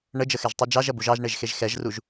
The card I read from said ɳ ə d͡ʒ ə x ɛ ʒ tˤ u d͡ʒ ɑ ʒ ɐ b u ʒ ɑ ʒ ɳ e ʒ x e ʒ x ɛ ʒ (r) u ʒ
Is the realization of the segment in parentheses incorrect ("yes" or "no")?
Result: no